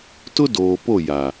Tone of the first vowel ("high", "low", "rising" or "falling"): high